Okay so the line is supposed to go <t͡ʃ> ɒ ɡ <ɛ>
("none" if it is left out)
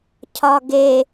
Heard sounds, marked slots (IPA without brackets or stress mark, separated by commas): cʰ, e